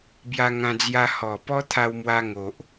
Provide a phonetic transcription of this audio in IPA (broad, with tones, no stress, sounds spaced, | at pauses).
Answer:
b j a˧ ŋ ã˧ d͡z j a˧ h ɔ˨˩ p ɔ˦ t̪ʰ a˧ w m w a˧ ŋ o˨ ʔ